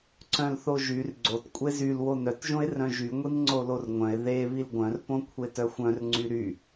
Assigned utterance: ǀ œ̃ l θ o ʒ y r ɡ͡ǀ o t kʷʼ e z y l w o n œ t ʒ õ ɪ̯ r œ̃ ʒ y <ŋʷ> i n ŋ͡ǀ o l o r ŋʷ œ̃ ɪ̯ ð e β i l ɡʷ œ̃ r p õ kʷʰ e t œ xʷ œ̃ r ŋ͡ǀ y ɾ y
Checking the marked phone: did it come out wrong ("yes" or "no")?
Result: no